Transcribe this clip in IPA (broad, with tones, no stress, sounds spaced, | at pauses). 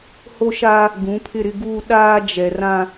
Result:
h o˦ ʃ aː˦ | ɡ ũ˨˦ pʰ ɪ˦˨ ɾ ɪ˦ ɡ uː˦ ɗ aː˦ d͡ʒ ɛ˨ r ã˦